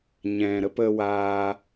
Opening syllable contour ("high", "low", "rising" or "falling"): low